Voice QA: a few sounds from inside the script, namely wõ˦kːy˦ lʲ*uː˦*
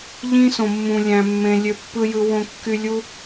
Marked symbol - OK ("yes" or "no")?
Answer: no